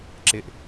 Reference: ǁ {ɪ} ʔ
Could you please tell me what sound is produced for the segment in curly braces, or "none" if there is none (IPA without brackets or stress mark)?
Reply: ɪ